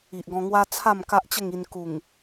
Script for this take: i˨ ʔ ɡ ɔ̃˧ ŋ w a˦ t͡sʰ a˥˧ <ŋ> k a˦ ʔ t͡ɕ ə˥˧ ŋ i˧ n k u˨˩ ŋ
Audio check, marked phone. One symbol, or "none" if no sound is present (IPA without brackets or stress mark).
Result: m